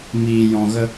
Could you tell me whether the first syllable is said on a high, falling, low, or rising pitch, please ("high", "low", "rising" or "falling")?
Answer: low